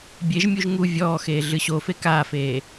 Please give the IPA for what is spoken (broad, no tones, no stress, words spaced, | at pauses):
bʲeʒmʲuʒ ŋu vʲɔːxeː ɮɨɕofe kaːfeː